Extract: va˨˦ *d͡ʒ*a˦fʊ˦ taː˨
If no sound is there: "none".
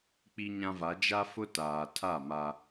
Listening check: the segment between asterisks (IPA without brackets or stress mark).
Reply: d͡ʒ